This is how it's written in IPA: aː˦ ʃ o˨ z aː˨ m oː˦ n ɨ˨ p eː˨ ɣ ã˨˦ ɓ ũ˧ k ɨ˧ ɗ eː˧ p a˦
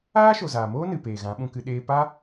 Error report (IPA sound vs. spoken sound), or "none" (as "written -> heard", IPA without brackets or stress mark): none